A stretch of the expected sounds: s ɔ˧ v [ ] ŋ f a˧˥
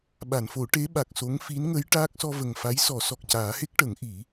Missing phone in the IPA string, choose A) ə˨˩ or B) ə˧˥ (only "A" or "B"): A